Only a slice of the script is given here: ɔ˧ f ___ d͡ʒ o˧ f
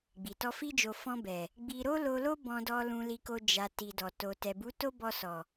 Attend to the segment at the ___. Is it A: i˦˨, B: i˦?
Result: B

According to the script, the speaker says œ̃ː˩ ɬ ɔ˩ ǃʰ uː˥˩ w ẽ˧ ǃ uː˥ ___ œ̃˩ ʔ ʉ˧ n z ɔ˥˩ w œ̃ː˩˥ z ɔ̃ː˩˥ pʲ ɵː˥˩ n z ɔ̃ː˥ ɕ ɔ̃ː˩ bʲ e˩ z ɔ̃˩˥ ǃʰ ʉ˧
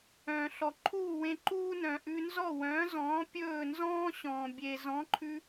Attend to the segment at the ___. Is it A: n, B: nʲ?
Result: A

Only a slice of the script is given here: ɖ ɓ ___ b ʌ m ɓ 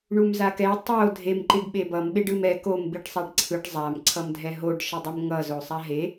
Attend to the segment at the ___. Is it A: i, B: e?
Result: B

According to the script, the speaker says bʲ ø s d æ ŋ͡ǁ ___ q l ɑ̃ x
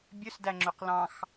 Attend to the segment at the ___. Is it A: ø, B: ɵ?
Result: B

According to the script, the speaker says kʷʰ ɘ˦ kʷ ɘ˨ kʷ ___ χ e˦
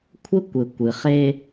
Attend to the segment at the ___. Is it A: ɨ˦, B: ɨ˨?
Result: B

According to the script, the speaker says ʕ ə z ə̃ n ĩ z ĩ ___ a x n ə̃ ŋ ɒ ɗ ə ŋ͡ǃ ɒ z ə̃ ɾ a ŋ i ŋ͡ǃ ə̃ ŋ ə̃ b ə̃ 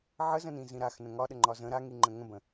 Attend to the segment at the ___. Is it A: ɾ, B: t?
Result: A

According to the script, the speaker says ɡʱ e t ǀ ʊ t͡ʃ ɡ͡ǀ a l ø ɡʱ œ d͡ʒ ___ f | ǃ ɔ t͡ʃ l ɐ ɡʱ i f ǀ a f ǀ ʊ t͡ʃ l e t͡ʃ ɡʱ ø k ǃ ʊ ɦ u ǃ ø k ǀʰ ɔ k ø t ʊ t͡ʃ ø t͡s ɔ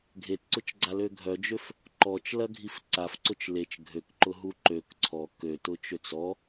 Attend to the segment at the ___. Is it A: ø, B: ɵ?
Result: A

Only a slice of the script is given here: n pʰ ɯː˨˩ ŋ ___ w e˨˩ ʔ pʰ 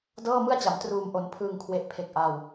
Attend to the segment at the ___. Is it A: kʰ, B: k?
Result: A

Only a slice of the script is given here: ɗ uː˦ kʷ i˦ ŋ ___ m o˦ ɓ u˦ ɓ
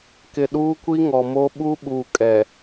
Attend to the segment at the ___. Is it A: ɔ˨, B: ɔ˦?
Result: A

